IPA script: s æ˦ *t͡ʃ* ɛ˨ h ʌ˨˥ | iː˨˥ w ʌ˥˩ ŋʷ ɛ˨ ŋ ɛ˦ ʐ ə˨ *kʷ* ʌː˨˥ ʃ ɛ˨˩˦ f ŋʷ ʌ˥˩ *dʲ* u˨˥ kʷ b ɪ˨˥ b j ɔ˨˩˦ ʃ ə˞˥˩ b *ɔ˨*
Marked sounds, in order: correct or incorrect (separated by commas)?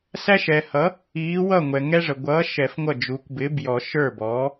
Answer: incorrect, incorrect, incorrect, incorrect